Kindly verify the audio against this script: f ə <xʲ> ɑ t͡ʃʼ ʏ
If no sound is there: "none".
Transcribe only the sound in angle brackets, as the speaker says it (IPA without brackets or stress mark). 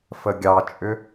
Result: ɡʲ